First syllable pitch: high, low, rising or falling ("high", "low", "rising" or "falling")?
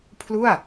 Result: falling